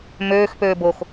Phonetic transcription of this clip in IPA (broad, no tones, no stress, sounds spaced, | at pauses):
m øː x p øː b o x